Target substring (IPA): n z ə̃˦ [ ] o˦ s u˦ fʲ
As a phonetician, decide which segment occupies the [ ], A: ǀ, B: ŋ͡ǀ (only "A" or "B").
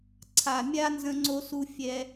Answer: B